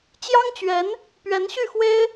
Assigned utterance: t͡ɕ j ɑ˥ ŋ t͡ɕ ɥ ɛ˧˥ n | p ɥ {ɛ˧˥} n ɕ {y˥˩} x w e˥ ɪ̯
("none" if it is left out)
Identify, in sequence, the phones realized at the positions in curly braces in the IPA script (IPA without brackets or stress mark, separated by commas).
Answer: ɛ˧˥, y˥˩